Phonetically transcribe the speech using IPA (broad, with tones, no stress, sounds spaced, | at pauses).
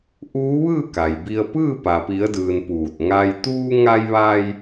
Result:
ʔ uː˧˥ ʋ ɯː˥˨ k a˩ j b i˧ ə̯ p ɯː˥˨ p a˩ p i˩˧ ə̯ d ɯː˩ n p uː˧˩ t̚ ŋ a˧ j t̪ uː˧ ŋ a˧ j ʋ a˧ j